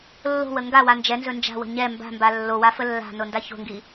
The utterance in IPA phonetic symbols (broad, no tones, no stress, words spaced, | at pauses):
lːo̤wə ŋɡawa nd͡ʒɛnzɵ nd͡ʒa̤wə̤ ɲɛ mba̤mba lːowafə lːa̤nonda ço̤ŋɡi